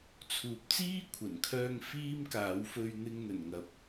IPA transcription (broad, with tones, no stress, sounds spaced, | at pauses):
t͡sʰ uː˨˥ p̚ t͡s iː˥ kʷʰ ɐ˨˩ n kʰ œː˧ ŋ f iː˥ m k aː˨˥ w f ɵ˧ ɥ n̪ ɪ˧ ŋ n̪ ɵ˨˩ n ŋ ɐ˨ p̚